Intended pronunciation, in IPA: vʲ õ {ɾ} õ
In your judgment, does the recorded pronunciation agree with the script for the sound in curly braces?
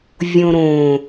yes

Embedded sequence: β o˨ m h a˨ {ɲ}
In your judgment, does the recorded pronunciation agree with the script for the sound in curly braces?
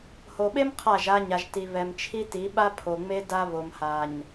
yes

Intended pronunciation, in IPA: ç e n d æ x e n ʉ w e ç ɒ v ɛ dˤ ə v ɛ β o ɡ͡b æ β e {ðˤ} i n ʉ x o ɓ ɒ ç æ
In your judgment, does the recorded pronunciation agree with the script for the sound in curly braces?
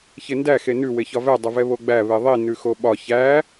yes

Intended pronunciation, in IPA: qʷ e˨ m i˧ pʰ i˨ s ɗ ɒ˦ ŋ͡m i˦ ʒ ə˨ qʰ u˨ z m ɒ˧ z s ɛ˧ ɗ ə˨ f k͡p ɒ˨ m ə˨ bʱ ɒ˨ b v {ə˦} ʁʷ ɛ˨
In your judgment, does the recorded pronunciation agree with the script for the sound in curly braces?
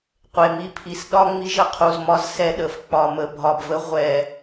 no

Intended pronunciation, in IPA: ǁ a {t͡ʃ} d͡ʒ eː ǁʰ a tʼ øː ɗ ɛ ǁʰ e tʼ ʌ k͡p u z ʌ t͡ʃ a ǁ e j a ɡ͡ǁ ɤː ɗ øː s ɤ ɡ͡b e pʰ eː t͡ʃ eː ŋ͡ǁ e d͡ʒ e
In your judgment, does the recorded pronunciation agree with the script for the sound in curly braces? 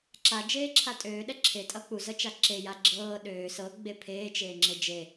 no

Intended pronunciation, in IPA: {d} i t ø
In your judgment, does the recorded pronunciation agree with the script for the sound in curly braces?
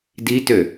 yes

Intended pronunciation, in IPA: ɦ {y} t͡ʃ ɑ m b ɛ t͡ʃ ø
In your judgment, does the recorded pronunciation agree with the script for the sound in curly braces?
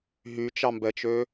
yes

